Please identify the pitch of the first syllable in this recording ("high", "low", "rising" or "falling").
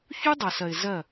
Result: high